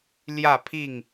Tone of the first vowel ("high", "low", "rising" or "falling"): falling